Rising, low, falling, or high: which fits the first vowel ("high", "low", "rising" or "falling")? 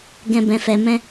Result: low